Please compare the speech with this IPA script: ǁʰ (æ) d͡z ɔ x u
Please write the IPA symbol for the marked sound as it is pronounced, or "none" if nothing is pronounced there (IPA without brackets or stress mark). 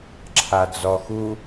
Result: a